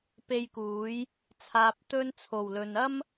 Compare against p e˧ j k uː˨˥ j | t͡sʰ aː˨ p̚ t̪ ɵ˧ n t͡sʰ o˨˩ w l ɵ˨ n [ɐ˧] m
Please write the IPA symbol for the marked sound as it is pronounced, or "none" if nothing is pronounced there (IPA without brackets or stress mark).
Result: ɐ˥